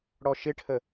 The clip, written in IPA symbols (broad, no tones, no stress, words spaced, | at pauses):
ɽɔʃɪʈʰə